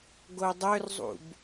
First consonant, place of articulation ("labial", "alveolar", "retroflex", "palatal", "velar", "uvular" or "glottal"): velar